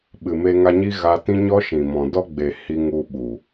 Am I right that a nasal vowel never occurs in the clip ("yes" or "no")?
no